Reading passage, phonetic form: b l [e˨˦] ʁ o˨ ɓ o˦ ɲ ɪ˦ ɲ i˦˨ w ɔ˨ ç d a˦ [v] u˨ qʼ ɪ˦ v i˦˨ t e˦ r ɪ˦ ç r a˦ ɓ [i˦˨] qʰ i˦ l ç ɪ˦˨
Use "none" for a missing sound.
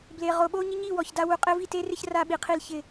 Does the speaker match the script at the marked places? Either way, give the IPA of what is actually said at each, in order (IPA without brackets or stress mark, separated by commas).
e˨, w, i˨